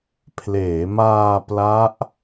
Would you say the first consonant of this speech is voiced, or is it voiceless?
voiceless